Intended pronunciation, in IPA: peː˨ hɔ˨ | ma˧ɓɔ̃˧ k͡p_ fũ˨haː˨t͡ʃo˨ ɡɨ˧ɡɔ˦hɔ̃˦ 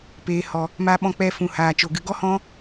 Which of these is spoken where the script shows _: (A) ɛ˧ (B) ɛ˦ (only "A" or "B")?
A